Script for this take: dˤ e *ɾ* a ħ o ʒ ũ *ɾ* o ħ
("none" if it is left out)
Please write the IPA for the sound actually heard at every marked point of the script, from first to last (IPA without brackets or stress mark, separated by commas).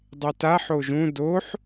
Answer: t, d